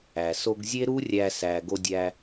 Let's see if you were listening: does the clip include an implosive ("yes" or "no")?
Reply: no